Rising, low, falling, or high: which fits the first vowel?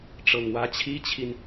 low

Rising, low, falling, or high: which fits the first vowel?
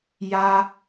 high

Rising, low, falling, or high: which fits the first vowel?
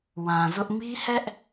low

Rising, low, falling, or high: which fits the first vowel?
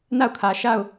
falling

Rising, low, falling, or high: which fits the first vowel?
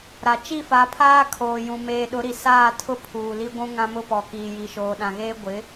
low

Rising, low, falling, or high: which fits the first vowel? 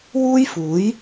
high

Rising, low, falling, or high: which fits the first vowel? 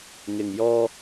low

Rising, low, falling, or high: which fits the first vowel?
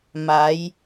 rising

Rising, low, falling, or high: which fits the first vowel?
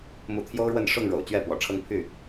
rising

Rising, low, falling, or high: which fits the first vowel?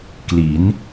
rising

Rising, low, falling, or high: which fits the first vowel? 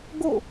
falling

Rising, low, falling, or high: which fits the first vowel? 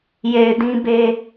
low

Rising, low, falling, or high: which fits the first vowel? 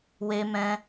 high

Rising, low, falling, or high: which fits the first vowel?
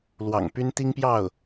low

